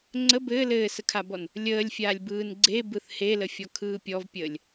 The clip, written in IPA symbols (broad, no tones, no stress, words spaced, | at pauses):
ŋ͡ǀə bɘː lɘːsəkʰabɔn | lʲəːlʲfʲaːlʲbɯːn ɡ͡ǀebɯθ heləfʲɔkʰɯː pʲɔvpʲəːlʲ